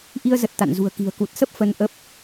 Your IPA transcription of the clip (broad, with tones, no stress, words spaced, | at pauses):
ʔi˧ə̯ zə˨˩t̚ t̪a̰˧˨nzṳ˨˩ə̯ki̤˨˩ə̯ ku˨˩t̚sə˦˥p̚ fə˧nʔə˦˥p̚